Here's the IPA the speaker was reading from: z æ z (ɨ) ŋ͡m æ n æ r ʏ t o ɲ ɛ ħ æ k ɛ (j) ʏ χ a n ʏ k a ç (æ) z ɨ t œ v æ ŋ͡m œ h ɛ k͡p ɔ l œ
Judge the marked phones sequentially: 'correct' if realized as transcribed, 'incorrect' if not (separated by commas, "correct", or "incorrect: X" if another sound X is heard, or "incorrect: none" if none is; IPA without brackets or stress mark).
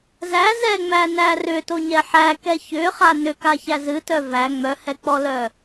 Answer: incorrect: ɛ, incorrect: ç, correct